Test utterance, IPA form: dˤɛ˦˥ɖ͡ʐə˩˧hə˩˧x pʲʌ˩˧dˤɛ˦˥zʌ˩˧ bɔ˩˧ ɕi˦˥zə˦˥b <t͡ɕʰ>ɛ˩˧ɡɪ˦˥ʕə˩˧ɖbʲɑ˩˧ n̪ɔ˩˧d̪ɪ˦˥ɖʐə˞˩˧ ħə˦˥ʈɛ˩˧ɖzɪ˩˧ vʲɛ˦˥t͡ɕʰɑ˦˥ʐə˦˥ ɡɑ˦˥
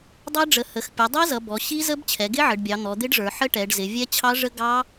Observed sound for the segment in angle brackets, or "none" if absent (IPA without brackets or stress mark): t͡ɕʰ